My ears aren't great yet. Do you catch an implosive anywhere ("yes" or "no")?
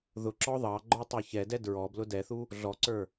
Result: no